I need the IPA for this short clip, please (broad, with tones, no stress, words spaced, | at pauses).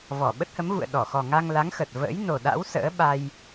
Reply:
vɔ˧˩ ɓə˦˥t̚hə˨˦mvṵ˧˨ə̯ ɗɔ˧˩xɔ˨˩ŋa˧ŋ la˨˦ŋxə˨˩t̚ və̰ː˧˥j no˨˩ɗa̰˧˥w sə̰ː˧˥ɓa˧j